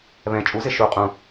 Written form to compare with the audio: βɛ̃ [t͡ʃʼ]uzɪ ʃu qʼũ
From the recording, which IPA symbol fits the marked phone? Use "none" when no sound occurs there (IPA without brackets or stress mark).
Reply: t͡ʃʼ